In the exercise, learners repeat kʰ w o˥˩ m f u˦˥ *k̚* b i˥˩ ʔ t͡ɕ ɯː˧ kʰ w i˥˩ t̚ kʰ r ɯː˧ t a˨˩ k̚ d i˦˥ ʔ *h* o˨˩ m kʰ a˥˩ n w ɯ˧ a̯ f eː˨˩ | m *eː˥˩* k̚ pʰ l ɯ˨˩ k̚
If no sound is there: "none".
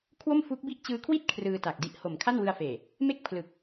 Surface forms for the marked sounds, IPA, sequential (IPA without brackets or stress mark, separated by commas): k̚, h, e˥˩